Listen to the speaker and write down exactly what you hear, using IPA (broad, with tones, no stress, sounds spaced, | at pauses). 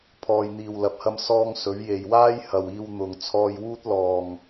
pʰ ɔː˨ j n̪ iː˨ w l ɐ˨ p̚ h ɐ˧ m s ɔː˧ ŋ s ɵ˨˧ ɥ j e˨ j w aː˥ j h ɐ˨ w iː˧ w n̪ ʊ˨ ŋ t͡sʰ ɔː˧ j w uː˥ t̚ l ɔː˨ ŋ